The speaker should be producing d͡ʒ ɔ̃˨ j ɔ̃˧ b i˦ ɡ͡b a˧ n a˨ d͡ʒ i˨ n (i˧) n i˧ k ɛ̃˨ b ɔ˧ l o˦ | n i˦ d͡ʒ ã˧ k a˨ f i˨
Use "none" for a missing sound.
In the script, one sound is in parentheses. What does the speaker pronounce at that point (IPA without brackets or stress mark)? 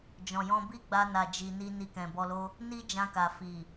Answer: i˧